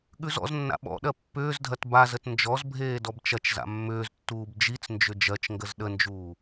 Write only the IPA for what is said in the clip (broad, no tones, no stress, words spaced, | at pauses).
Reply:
ɠʉzɔ̰znːa̰ ɓɔ̰ɗɜ pːʏːzdʱɐt bazət nd͡ʒɔzbʱeː dɔbt͡ʃɐt͡ʃza̰ mːʏːztːuːb d͡ʒit͡snd͡ʒʏ d͡ʒɜt͡ʃŋɡəz ɗənd͡ʒuː